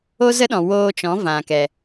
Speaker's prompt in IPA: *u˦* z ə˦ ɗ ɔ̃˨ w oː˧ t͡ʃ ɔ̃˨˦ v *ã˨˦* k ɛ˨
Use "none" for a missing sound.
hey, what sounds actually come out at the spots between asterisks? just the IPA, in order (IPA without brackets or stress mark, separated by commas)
o˦, ã˨